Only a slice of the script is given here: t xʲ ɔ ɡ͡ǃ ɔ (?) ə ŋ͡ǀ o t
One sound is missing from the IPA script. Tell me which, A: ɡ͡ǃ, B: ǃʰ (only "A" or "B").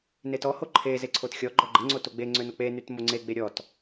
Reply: A